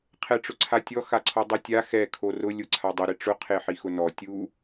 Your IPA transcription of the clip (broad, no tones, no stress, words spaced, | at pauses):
qʰɛʈ͡ʂʊǀʰatʲɔ xaǀʰɔdˤutʲa xɛ kʰorʊ lʲʊǀʰadˤɪ ɾɪʈ͡ʂʊ qʰeħixʊnɔ tʲu